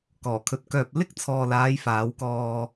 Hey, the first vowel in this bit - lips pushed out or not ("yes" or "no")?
yes